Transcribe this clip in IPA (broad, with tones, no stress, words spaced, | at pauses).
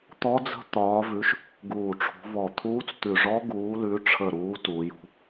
t̪ɔ˦˥d͡zə̤˦˥ t̪ɒː˨˦vʉ˨˦ʃ | ɡuː˧˩ʈ͡ʂʰṳ˨˦vɔ˧˩t̪ʰuː˦˥t͡s t̪ʉ˧˩ʐɔ˦˥ ɡuː˨˦lʉ˨˦ʈ͡ʂʰə˧˩ɾuː˨˦ tuː˨˦jṳ˨˦